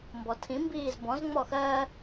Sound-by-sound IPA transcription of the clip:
mbɔtʰĩ mbiːzbɔ̃z ŋ͡mɔxɜː

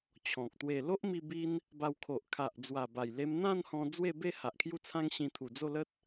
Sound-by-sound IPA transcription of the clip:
t͡ɕʰɔ̃˨k̚ t̪we˨˩ lo˦ʔmi˧ bi˦n | ba˧wkʰo˨ʔ kʰa˨ʔ d͡zwa˨˩ba˨˩j le˧mn̪ã˥˧nhɔ̃˧ d͡zwe˥˧be˥˧ ha˨ʔkʰju˦t͡sʰã˦ŋɕĩ˧ t̪ʰu˨˩ d͡zo˥˧lə˦t̚

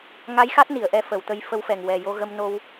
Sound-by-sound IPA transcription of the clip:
ŋa˧˥jxa˦˥t̚ ni˨˩˨ə̯ʔɛ˧fə˨˩˨wt̪ə˧j fə˧˥wfɛ˨˩ŋ wɛ˨˩jo˧ ɣə˧mno˧w

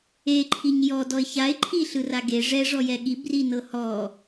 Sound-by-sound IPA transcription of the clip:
eǃʰiɲ jɔ dɔɪ̯çaɪ̯ǃʰi ɬɯraɡe ʐɛʐɔjɛ ɠibrinɤ hɔ

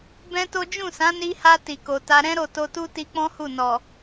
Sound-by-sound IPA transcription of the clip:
bɛ̃˦to˦ d͡ʒũ˦˨sã˨˦ni˧ha˧ ti˨ko˨ta˧ ɾɛ̃˦ɾo˦˨ to˧tu˦ti˧k͡pɔ̃˦ hu˦˨ nɔ˨

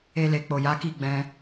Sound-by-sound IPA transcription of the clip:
e˧ le˨k͡po˨ja˨˦ki˦˨ ɡ͡bɛ̃˧

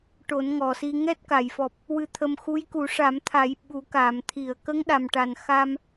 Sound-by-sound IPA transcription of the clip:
ʈo˨˩˦nŋɔ˨˩si˧ ŋɛ˦˥t̚ka˨˩˨jfɔ˨˩p̚ | wɨ˧t̪ʰə˧mxu˧˥j ku˨˩˦ʂa˨˩˦mt̪ʰa˨˩˦j ɓu˨˩˦kaː˨˩˨m t̪ʰi˨˩˨ə̯kə˧˥ŋɗa˨˩mʈa˨˩n xa˧m

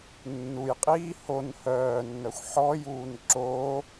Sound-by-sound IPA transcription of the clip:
nːujqʼiː hon hœːnːœxʷ ħɔjuːn ǁo

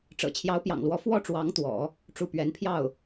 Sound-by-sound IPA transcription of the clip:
ʈ͡ʂɤ̰˨˩t͡ɕʰjɑ˧˥ʊ̯pjɑ̰˨˩ŋlwɔ˧˥ fwɔ˥˩ʈ͡ʂwɑ˧˥ŋt̪wɔ̰˨˩˦ | ʈ͡ʂu˥˩pɥɛ˧˥n pʰjɑ˥˩ʊ̯

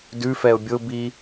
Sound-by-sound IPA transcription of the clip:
dʉfɛʊ̯ bʲʊbi

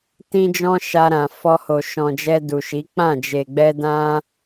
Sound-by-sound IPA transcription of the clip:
tĩ˦d͡ʒɔ̃˦ ʃa˧ɾã˨ fɔ˧ho˨ʃɔ̃˨d͡ʒɛ˧ du˨ʃi˨˦ k͡pã˦˨d͡ʒe˨ ɡ͡bɛ˧dã˧

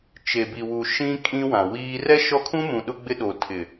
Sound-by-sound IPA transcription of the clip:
t͡ʃe˨bi˨wu˨ ʃĩ˦kʼĩ˦wã˨wiː˦ rɛ˦ ʃɔ˦kʰũ˦mũ˨ ɗʊ˦ɡ͡bɪ˦ ɗo˨tʰɪ˨

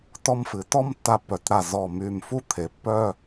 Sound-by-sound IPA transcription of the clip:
tɔ˧mfɨ˩˧tɔ˥˧m tːa˧pːœ˩˧tɾa˧˩ zɔ˧˩my˧˩m fu˥t̪ʰe˩˧pːœ˥˧

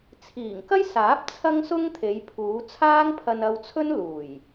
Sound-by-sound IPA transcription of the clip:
t͡sʰiː˨˩ŋkɐ˥jsaː˨˥p̚ t͡sʰɐ˥ŋsʊ˥ŋt̪ʰe˨˧jpʰuː˨˧ t͡sʰaː˥ŋpʰɐ˧nɐ˧wt͡sʰɵ˥n luː˨˩j

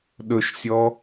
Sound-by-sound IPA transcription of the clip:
ɗɵʃsʲɔ

